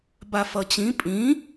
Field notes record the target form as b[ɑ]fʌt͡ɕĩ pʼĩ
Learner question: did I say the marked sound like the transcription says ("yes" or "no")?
no